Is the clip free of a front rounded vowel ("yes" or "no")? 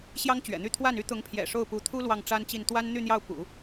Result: no